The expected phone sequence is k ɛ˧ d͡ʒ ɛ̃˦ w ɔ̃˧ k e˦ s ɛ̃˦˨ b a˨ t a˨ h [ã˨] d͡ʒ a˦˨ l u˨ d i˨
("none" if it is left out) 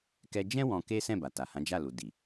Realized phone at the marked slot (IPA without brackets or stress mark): ã˨˦